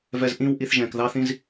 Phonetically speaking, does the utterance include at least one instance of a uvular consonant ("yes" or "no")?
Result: no